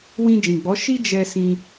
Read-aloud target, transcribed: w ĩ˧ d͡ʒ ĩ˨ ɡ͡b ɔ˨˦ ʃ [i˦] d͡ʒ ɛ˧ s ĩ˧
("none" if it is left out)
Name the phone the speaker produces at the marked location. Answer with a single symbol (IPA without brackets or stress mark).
i˦